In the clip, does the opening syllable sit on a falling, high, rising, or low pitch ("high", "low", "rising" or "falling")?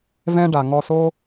high